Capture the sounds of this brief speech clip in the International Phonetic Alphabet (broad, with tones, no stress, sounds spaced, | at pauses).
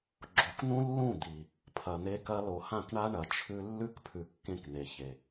ɡ͡ǁ o˨ k n̪ ũ˦ lː ũ˦˨ d̪ i˨ | pʰ ɐ˨ n̪ e˦ k ɐ˦ l o˨ h ã˦˨ k ɳ a˦ ɳ ɐ˨ t͡ʃʰ ʉ˦ lː ʉ˦ k pʰ ʉ˨ kː ẽ˦ k n̪ e˨ ç e˨